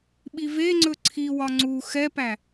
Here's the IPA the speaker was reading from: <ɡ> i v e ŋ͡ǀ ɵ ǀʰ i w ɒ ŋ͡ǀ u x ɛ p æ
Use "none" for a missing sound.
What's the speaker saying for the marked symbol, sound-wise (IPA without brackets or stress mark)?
ɓ